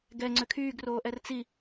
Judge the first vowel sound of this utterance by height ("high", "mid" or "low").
mid